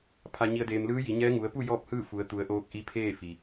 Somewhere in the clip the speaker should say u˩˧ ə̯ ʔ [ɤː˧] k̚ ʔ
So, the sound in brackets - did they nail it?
no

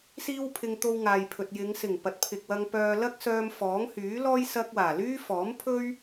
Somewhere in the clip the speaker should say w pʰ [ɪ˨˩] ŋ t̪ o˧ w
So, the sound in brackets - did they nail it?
no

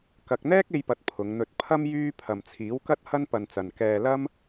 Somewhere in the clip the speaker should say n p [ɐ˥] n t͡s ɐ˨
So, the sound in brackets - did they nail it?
no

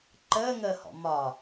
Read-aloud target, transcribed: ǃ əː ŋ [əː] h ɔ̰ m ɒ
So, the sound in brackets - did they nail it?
yes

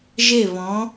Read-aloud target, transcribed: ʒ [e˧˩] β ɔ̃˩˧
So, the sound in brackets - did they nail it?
yes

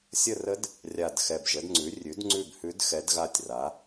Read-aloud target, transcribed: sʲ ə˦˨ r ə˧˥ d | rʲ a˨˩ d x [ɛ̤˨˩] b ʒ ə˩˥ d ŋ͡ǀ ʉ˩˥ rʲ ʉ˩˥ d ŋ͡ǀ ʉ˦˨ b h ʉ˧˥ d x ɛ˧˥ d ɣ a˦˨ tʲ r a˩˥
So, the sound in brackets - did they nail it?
no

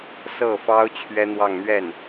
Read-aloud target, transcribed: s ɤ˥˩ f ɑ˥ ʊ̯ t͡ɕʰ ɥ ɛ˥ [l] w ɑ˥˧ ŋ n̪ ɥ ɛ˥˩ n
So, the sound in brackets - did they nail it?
no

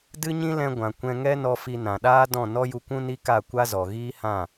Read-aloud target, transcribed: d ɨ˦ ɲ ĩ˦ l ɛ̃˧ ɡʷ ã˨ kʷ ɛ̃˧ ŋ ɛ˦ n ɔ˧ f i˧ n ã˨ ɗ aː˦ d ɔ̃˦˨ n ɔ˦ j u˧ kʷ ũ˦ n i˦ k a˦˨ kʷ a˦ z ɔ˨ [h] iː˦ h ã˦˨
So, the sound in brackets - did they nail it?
no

